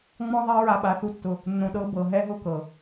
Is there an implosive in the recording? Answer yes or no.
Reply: yes